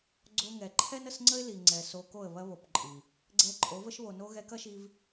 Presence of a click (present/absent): present